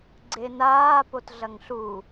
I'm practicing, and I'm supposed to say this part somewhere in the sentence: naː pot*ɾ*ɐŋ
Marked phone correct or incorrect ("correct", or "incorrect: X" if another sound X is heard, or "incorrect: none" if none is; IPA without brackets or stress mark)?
incorrect: ɮ